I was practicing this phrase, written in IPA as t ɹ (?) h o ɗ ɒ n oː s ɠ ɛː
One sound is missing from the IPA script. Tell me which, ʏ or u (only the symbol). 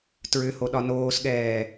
ʏ